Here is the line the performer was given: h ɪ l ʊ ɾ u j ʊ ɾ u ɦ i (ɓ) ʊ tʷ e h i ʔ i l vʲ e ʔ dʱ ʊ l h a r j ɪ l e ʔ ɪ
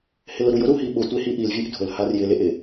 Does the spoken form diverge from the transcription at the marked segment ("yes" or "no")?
no